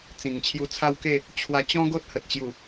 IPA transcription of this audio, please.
t͡s ĩ˨˩ ŋ t͡ɕʰ j u˧ t͡sʰ a˦ w k e˥˧ | t͡ɕʰ w a˧ t͡ɕ ɔ̃˦ ɡ o˦ t̚ h ə˨ t̚ t͡ɕ j u˨˩

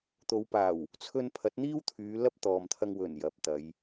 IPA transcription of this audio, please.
t̪ o˨˧ w p aː˨˩ w | t͡sʰ ɵ˧ n pʰ ɐ˨˥ t̚ n̪ iː˥ w t̪ʰ yː˨˧ l ɐ˥ p̚ t̪ ɔː˨ m t̪ʰ ɐ˧ ŋ w ɵ˨˩ n j ɐ˨˥ p̚ t̪ ɐ˨˧ j

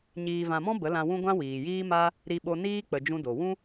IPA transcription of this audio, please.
ɲ iː˨ v ã˨ m ɔ̃˦ b ə˨˦ l ã˧ w ũ˦ ɡʷ ã˦ w iː˨ j iː˦ m a˦ | ɾ i˧ ɓ o˧ n iː˦ k͡p ə˨ d͡ʒ ũ˦ d o˨ w ũ˦

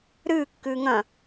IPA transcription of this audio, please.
ɾ ɨː kː ɨː ŋ ɐ̃

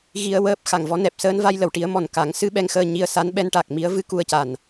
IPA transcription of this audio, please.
ɣ i˧ ə̯ w əː˦˥ p̚ x a˨˩ ŋ v ɔ˧˥ n ɛ˨˩ p̚ s əː˧ n v a˧ j l ə˨˩˨ w ʈ i˨˩˦ ə̯ m ɔ˨˩ n k a˨˩˦ ŋ s ɨ˧˥ ɓ ɛ˧˥ ŋ x əː˧ ɲ i˧ ə̯ s a˧˥ n ɓ ɛ˧˥ n ʈ a˨˩ k̚ m i˧˥ ə̯ v ɨ˧˥ k u˧ ə̯ c a˨˩ n

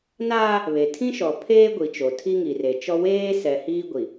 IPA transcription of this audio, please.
n aː˦ | β e˨ tʰ ĩ˦ ʃ ɔ˨ pʰ eː˦ ɡʷ i˨ t͡ʃ o˨ tʰ i˦ ŋ i˨ r e˨ t͡ʃ ɔ˦ w eː˦ s ɛ˨ h iː˦ ɡʷ i˨

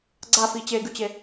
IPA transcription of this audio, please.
ɡ͡ǀ a f i t͡ɕ e ɡ ʉ t͡ɕ e

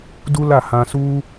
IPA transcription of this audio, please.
d u˦ l a˦˨ h ã˧ s u˦

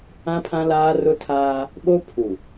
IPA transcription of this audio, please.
ã˦ pʰ ã˦ l aː˦ r ʊ˦ tʰ aː˦ | ɓ o˦ pʰ u˨

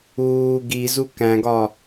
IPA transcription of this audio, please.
uː ɡ i z u k æ̃ ɡ ɒ

